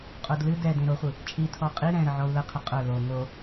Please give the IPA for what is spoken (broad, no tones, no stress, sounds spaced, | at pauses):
qʼ o d l ɨ d ɛ d ẽ ɾ o χʷ ɨ | t͡ʃʼ i tʰ ɔ qʼ i ɾ ɛ̃ ɾ ə ʕ ɔ u̯ l ə qʰ ə qʼ œ l o ŋ o